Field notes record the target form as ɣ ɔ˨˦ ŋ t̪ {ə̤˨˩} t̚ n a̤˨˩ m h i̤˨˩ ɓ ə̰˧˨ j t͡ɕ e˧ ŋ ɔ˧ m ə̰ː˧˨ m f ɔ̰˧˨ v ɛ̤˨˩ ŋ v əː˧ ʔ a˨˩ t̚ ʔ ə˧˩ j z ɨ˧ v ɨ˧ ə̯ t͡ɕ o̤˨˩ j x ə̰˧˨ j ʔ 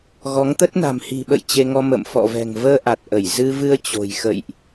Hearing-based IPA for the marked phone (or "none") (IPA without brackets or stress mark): ə˦˥